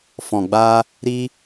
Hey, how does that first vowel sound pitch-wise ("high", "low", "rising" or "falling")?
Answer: low